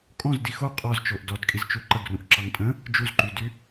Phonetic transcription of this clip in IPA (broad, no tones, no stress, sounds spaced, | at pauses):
kʼ ɔ̃ z d i x o qʼ ɔ z t͡ʃ o ʔ d ɔ d kʼ i z t͡ʃ u ǃ ə ɡ r ũ ʔ ǁ ɑ ŋ tʼ ə̃ | d͡ʒ u z ǃ y d y